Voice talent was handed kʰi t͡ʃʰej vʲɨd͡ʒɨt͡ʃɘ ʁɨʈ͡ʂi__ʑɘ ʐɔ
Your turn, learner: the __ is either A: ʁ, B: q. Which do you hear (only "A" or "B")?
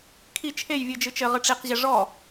B